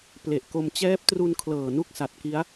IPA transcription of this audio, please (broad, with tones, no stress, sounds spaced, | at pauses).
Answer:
p l e˨˩ ʔ k o˧ m t͡ɕ ɛː˦˥ p̚ t r u˧ n kʰ l ɤː˨˩ n u˥˩ k̚ s a˨˩ t̚ k i˦˥ a̯